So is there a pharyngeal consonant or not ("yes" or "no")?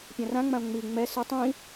no